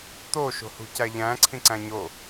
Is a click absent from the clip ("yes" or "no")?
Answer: no